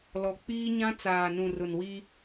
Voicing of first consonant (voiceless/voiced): voiced